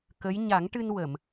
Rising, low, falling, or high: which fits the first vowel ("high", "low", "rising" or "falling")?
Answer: rising